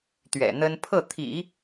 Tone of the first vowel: low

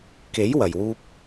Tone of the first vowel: rising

